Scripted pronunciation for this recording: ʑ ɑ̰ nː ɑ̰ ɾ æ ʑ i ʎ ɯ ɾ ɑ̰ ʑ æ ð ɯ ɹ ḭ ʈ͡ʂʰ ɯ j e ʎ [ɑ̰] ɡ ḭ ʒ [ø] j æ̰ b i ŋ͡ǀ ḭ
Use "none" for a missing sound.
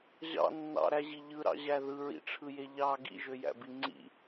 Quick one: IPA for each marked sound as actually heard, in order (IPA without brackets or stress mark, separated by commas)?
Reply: ɑ, ø